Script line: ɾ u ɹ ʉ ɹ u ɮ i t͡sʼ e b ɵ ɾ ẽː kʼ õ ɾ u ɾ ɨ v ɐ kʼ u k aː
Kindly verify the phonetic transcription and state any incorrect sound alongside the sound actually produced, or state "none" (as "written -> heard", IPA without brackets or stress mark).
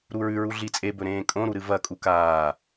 none